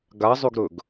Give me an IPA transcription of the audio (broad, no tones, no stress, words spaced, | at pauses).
ɡazˤʉɡɾɵɡ